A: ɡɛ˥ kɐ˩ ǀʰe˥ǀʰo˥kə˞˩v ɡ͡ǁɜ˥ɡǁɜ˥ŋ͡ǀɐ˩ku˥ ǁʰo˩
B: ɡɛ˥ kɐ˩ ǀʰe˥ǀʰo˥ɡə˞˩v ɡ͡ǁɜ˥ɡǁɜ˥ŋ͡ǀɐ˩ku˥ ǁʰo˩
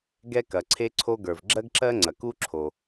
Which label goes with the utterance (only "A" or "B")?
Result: B